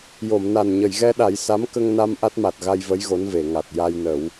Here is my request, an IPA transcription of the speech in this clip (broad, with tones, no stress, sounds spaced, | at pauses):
j o˨˩˨ m n a˨˩ n ɲ ə˨˩˨ j ɣ ɛ˧ ɗ a˨˩˦ j s a˧˥ m k ə˧ ŋ n a˧ m ʔ a˦˥ t̚ m a˨˩ t̚ ɣ a˧ j v ə˧˥ j ɣ o˧˥ n v e˨˩˨ ŋ a˨˩ t̚ j a˧ j n ə˨˩˦ w